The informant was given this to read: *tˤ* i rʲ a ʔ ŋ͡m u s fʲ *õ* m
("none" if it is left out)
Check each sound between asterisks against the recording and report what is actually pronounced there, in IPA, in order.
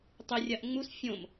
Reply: tˤ, õ

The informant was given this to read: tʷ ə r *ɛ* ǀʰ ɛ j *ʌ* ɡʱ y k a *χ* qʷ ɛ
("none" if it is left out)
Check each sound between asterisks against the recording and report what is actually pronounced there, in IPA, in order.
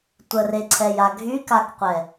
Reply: e, a, k

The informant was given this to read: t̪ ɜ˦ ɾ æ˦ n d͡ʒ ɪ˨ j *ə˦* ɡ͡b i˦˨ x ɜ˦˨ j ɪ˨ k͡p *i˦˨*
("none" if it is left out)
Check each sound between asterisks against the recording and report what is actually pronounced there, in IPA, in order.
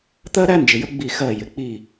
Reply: ə˦, i˦˨

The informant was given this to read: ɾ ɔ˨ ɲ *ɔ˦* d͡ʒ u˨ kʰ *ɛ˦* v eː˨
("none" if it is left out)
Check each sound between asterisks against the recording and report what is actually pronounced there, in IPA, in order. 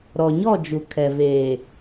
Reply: ɔ˦˨, ɛ˨

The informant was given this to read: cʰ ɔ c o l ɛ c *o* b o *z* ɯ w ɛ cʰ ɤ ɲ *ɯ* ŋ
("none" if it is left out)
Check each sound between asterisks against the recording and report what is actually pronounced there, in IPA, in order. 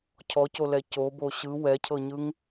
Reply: o, ɕ, ɯ

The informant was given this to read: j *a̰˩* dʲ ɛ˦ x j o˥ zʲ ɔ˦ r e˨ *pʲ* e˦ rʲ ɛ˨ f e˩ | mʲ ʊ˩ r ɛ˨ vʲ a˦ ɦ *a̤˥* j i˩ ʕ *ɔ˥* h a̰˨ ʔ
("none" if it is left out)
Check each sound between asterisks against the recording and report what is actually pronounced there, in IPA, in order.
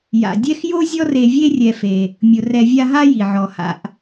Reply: a̰˩, vʲ, a˥, ɔ˩

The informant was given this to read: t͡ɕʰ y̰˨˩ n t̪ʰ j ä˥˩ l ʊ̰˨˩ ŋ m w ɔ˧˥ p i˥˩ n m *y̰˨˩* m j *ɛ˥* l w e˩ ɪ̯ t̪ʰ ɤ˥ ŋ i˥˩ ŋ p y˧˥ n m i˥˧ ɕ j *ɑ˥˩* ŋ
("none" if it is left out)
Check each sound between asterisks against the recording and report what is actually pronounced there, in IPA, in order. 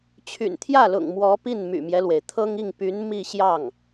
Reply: y̰˨˩, ɛ˦, ɑ˥˩

